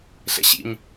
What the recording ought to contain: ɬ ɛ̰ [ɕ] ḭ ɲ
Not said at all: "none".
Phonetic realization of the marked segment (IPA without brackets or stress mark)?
ɕ